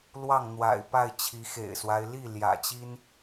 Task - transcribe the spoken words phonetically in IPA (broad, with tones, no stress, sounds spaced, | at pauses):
l w ɑ˥˨ ŋ n̪ w a̰˨˩ ɪ̯ p a˥˨ ɪ̯ t͡ɕʰ i˨˦ x ḛ˨˩ ɪ̯ s w a˦ ɪ̯ l i˥˨ l j ä̰˨˩ t͡ɕ i˦ n